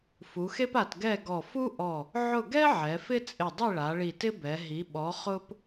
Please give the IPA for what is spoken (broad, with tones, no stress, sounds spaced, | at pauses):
f u˩˧ x e˥ p a˧˩ t ɡ ɛ˥˨ ɡ ɔ˧˩ f u˥ ʔ ɔ˧˩ | ʕ ʊ˥˨ ɡ ɛ˥ ʕ ɛ˩˧ f ɪ˥ t͡sʼ ɪ˧˩ dˤ i˥˨ ɭ a˩˧ ɭ i˧˩ t ɪ˥ b ɛ˩˧ ɦ i˩˧ ɓ ɔ˩˧ χ ʊ˥ p